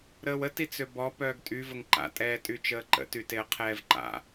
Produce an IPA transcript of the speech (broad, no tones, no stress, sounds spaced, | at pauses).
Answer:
ɾ əː w ə t i t͡s ø b ɔ p œː ɡ tʼ y v ə ŋ ǃ a̰ tʼ ɛː tʼ yː t͡ʃ əː ǃ ə̰ t y t e ə̯ qʰ ɛː v ǃ a̰